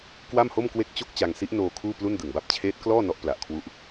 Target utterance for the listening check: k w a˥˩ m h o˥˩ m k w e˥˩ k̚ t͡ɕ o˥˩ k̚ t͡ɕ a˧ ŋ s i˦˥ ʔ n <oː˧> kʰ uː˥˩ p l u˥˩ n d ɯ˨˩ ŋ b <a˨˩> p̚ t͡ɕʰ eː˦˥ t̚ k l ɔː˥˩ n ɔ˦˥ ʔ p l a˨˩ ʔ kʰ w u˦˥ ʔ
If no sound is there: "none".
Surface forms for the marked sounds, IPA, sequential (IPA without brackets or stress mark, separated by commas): oː˧, a˥˩